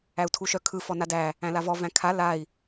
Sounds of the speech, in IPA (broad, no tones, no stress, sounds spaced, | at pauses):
æ u̯ tʰ u ʃ œ kʰ ɯ f ɔ n a d æ | æ̃ l a v ɔ v æ̃ kʰ a l a i̯